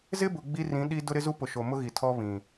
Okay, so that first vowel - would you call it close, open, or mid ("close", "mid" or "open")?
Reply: close